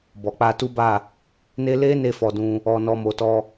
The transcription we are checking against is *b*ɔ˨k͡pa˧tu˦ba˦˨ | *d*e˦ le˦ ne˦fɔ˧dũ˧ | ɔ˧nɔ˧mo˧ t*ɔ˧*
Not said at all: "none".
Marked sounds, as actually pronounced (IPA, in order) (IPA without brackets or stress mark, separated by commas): b, n, ɔ˧